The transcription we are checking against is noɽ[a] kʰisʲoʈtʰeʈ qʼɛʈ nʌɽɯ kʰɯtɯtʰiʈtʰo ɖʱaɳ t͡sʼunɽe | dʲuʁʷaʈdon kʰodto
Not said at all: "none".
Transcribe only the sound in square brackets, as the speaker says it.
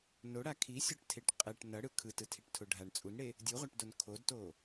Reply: a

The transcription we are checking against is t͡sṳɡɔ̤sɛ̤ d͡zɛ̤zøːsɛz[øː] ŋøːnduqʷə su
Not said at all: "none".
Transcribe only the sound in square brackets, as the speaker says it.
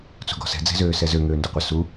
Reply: ø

